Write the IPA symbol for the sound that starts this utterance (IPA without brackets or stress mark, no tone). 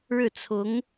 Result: ɻ